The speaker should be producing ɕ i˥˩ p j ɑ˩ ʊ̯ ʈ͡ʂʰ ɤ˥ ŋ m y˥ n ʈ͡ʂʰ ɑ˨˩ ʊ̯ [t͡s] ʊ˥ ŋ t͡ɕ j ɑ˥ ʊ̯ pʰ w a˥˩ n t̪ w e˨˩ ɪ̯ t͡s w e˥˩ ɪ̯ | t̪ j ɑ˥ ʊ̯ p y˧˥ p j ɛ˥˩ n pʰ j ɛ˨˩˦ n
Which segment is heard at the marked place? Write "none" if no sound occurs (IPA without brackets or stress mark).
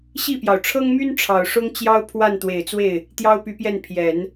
ʂ